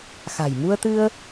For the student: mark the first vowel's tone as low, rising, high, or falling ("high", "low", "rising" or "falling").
low